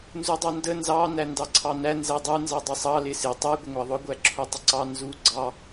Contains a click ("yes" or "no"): yes